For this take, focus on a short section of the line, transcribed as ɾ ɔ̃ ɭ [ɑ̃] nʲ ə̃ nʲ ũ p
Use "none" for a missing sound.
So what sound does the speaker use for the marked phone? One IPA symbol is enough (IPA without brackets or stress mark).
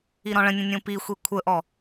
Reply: ə̃